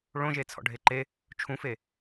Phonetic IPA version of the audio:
ɭ õ ʒ e t͡sʰ ɔ̰ ɖʱ e ǃ e | t͡ʃʰ ũ f e

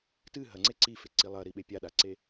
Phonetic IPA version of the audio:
t ɨ ɦ ɐ ŋ͡ǀ e ǀ i f e ǀ i lˠ ɐ ɾ i ɓ e pʲ a ɗ a ǀ e

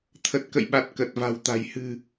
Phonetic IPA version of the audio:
t̪ʰ ə˨˩ t̚ k ə̰˧˨ j ɓ a˨˩ t̚ k ə˨˩ t̚ v a̤˨˩ w t̪ a̤˨˩ j h ɨ̤˨˩

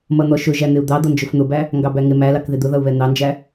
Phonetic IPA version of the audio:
m ʌ n̪ ɔ ʃ ʊ ʒ æ n̪ ɪ u̯ d̪ ɑ d̪ ʌ n d͡ʒ ʊ f n̪ ʊ b æ | ŋ ɡ ɑ b æ ŋ ɪ m æ l ɑ k ð ɪ d̪ ʊ ð ʌ u̯ β ɛ n̪ ɑ n d͡ʒ æ

